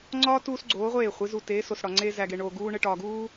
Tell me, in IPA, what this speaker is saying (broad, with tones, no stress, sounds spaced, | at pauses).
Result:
ŋ͡ǀ ɒː˦ t uː˦ s ɡ͡ǀ oː˨˦ ʁʷ eː˦˨ χʷ i˨˦ z u˨ t eː˨˦ s o˨ s ɽ ɒ˨ ŋ͡ǀ eː˦ z æ˨ ɡ e˨ ɳ oː˨ ɡ uː˦ ɳ e˦ ʈ ɒː˨ ɡ uː˦